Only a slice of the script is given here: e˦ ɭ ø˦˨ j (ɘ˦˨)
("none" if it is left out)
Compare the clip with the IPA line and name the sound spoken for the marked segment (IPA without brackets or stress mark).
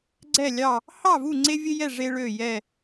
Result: ɛ˦˨